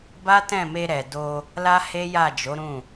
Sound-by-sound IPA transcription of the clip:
b a˦ t ɛ̃˦˨ m e˧ ɾ ɛ˨ d o˧ | l a˦ h e˦ j a˦˨ d͡ʒ o˨˦ ɾ ũ˦˨

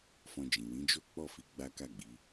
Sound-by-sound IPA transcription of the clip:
f ɔ̃˧ d͡ʒ ĩ˨ w ĩ˨˦ d͡ʒ o˦ k͡p ɔ˦˨ f i˨˦ ɡ͡b a˦ k a˦˨ ɡ͡b i˨˦

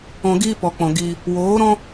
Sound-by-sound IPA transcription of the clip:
ɔ̃˧ ɡ iː˦ p ɔ˨ k͡p ɔ̃˨ ɡ iː˧ | w oː˨˦ ɾ ɔ̃˦

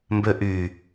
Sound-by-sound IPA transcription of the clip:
m b ø ʔ y

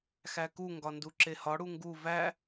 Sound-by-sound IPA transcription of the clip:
x æ k u ŋ ɡ ɒ n d u ǁ e h ɒ ɽ u ŋ ɡ u v æ

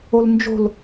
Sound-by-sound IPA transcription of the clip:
o l n d͡ʒ o̤ l

